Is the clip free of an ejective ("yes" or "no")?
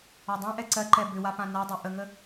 yes